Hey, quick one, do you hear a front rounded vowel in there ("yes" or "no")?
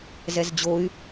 yes